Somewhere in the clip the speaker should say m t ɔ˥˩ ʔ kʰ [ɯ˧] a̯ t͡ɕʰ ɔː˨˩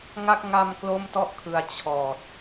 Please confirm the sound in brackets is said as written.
yes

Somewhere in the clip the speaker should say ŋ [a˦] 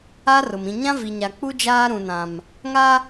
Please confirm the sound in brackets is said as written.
yes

